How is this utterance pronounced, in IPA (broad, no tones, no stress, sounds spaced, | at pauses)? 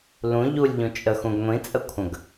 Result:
l ũ ʎ u lʲ ʎ ũ t͡ʃʼ ə x ũ ɡ ŋʷ ĩ t͡sʼ ə kʷʰ ə̃ ɡ